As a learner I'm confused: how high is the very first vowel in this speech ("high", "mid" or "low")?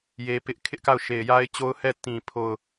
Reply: mid